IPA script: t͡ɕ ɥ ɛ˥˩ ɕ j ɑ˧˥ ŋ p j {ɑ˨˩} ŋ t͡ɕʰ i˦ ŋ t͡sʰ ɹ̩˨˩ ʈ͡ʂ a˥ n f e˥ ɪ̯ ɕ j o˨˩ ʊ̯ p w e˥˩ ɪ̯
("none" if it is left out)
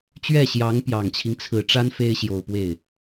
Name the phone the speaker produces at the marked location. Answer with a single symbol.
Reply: ɑ˨˩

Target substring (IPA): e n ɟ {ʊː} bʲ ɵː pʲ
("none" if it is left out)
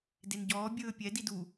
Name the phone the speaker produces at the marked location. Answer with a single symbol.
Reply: ɔː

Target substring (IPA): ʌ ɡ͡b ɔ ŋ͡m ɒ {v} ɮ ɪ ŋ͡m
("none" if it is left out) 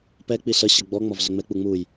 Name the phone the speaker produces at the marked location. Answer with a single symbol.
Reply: v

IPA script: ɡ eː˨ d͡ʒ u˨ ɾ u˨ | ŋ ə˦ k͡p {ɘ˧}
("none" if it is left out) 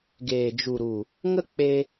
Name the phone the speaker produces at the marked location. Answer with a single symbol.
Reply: e˧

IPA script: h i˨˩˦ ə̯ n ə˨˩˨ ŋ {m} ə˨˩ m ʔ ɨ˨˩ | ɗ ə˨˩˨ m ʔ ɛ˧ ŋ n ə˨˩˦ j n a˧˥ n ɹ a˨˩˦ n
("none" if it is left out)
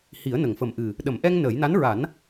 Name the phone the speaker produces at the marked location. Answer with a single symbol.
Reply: f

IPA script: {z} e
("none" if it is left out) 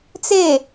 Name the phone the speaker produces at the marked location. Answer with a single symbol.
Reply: t͡s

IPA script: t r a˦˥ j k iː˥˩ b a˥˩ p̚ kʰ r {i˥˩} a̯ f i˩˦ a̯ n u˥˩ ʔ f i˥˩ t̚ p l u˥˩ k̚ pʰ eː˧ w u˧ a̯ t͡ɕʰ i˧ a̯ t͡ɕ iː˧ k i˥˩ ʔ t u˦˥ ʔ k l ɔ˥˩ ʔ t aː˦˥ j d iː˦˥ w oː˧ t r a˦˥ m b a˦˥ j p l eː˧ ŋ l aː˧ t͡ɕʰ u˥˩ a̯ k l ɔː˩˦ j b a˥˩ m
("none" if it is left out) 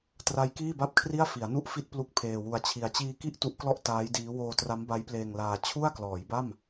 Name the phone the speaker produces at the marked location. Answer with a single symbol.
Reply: i˥˩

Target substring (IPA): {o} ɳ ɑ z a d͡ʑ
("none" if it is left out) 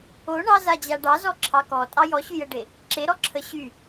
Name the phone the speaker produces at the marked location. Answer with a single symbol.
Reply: o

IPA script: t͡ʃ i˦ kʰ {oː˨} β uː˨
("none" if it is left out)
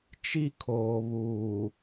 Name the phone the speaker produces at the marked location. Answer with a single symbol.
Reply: oː˨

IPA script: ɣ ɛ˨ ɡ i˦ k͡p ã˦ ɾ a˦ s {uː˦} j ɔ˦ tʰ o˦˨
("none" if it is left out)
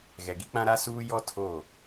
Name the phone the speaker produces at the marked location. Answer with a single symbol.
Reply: uː˦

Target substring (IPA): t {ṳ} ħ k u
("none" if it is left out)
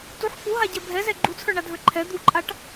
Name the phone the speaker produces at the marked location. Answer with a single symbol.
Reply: u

